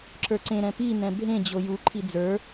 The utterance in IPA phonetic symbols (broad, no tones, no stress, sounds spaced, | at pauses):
ǁ ə˞ ǀ ẽ ɾ ɛ̃ p i n ɛ̃ bʱ ẽ d͡ʑ o j u ǃʰ i d͡z ə˞